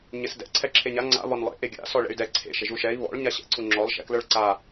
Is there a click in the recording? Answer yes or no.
yes